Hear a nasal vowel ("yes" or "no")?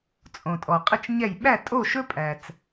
yes